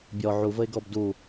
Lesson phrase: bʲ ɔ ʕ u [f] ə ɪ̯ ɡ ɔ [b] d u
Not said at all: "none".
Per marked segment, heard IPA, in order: v, b

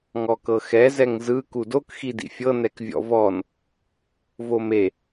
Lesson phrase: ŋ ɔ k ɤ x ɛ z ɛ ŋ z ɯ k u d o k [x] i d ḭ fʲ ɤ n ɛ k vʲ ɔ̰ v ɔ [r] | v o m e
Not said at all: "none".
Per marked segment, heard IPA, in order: x, n

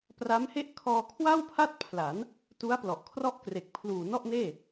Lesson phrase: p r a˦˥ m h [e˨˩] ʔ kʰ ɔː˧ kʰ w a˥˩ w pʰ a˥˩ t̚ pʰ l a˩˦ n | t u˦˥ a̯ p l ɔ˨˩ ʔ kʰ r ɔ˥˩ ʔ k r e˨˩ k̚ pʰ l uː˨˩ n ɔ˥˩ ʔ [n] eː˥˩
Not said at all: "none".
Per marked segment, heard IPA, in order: e˥˩, n

